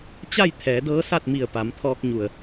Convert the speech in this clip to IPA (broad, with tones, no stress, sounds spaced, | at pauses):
t͡ɕ a˥˨ j t̪ʰ ɛː˩˧ d ɤː˧˥ s a˥˨ t̚ m i˧˩ ə̯ p a˩˧ m t̪ʰ ɔː˧ k̚ ɲ u˩ ə̯